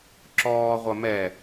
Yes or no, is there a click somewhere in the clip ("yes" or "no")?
yes